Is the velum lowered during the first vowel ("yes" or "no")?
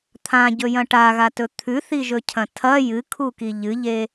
yes